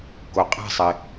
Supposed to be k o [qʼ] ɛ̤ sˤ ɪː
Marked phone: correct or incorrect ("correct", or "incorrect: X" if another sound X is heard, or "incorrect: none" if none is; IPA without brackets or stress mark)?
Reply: correct